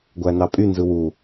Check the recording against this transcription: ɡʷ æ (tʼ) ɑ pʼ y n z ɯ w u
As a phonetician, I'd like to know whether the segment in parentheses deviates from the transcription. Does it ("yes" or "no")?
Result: yes